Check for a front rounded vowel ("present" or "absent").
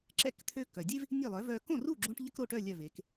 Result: present